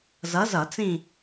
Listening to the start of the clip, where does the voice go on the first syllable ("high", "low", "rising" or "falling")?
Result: rising